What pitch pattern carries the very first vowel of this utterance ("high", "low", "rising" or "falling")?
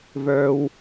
low